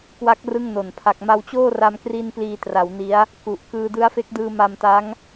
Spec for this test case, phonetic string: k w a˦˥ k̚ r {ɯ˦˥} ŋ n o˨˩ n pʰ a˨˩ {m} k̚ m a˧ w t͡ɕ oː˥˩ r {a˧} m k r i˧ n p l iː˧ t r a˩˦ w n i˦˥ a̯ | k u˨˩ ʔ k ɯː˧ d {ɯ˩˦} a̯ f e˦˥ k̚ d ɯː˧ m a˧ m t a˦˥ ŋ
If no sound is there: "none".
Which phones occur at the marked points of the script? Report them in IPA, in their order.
ɯ˥˩, none, a˧, ɯ˦˥

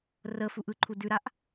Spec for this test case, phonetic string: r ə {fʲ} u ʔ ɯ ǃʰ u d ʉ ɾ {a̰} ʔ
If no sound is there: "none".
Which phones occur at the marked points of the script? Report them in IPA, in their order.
f, a

